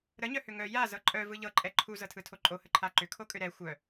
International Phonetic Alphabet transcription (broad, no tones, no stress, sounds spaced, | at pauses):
ɾ ə ɲ œ h ʏ ŋ œ j a z ɤ ǃʼ œ v ɯ ʎ ɤ ǃʼ ɛ ǃʰ u z ɤ tʰ ɯ tʰ o ǃʼ o h ə ǃʰ a ǃ ʏ kʰ o kʼ ʏ ɾ ɛ xʷ œ